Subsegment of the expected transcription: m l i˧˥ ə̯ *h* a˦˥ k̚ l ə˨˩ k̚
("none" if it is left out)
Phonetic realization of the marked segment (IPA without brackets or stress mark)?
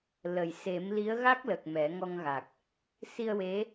ɣ